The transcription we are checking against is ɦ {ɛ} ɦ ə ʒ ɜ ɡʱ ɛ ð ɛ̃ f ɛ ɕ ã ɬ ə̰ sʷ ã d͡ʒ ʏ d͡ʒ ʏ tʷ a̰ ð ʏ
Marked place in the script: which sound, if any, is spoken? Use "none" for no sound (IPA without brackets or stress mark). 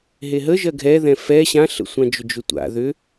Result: e